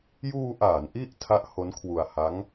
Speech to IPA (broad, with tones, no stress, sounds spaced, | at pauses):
j uː˧ ʔ aː˩˦ n ʔ i˥˩ ʔ tʰ a˦˥ ʔ h o˦˥ n kʰ w u˧ a̯ h a˦˥ ŋ